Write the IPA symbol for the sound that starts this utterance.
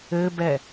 ɘ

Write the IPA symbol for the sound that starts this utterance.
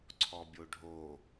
ǀʰ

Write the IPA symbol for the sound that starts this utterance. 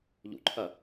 ʎ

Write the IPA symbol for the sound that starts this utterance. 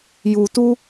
j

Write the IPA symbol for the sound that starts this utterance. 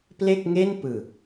p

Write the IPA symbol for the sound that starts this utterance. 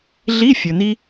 ɮ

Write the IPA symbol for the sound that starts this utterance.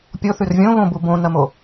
pʲ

